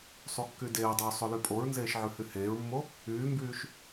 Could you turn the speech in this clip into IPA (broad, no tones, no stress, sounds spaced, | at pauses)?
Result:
sˤ u kː y d eː dˤ oː sˤ o l y pʼ o ɹ n z eː ʃ ʕ ʉ h y h eː ɹ mː o | yː m b yː ʃ